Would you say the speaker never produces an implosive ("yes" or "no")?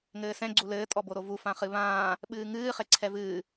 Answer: no